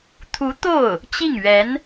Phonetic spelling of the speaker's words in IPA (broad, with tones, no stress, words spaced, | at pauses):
t̪ʰu˧˥t̪o˥˩ʊ̯ | t͡ɕi˥˩ŋɥɛ˧˥n